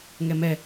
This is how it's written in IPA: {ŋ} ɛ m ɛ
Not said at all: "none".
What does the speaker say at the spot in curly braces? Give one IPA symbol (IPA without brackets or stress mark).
ŋ